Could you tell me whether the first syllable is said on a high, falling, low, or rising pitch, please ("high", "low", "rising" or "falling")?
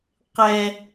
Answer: high